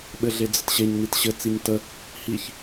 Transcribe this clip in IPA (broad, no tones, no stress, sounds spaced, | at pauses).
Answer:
ɓ ɘ ɮ e d͡z ə t ɕ e ɲ n i t ɕ ɘ t͡s i ɲ t ə | h i ç